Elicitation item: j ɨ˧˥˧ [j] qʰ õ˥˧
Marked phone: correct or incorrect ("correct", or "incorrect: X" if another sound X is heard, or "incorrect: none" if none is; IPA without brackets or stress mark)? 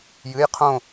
correct